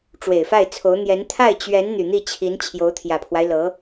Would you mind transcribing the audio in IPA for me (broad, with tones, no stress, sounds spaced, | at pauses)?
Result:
ʈ͡ʂ w e˨˩ ɪ̯ f a˥˩ ɪ̯ t͡sʰ o˧˥ ʊ̯ n̪ j ɛ˧˥ n t̪ʰ a˥˩ ɪ̯ t͡ɕ ɥ ɛ˧˥ n n̪ y˨˩ n̪ i˥˩ t͡ɕʰ i˧˥ n t͡ɕʰ j o˧˥ ʊ̯ t̪ʰ j ä˨˩ pʰ w a˦ ɪ̯ l ɤ˧˥